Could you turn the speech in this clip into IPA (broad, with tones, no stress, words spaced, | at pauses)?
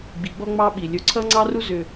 ɡ͡bi˨ɡ͡bɔ˦ŋ͡mɑ˦ɓi˨ lʲɵ˨ǀʰʌ˦ŋ͡ǀɑ˦ru˦ zʏ˦